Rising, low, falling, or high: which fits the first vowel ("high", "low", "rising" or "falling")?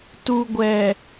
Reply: high